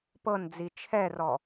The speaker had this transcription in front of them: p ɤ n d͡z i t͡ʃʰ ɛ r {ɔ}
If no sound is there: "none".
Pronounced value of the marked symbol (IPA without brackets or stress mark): ɔ